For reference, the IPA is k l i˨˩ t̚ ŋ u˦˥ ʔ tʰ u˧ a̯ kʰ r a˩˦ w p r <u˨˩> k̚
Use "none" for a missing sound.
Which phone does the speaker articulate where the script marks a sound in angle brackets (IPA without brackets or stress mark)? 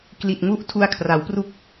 u˦˥